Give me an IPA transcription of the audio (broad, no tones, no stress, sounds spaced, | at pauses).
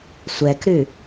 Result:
sʷ ɛ k ɾ ʉ